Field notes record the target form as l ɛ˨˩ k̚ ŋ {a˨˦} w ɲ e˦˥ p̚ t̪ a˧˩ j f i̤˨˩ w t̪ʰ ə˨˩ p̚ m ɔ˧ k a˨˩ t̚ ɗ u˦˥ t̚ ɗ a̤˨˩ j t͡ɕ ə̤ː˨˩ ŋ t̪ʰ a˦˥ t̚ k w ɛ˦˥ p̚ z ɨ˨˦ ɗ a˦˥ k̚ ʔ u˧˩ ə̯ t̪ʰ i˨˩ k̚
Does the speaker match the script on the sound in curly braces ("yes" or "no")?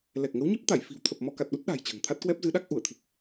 no